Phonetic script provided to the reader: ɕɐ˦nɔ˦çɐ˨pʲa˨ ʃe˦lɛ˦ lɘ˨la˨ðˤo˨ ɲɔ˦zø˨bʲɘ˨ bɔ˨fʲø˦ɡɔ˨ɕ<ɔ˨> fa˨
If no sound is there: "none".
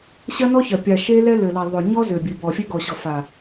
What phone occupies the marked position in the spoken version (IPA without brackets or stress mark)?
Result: ɔ˨